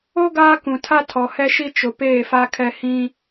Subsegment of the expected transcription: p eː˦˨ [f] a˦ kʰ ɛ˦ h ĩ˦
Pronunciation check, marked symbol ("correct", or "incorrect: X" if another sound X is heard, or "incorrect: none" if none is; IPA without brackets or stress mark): correct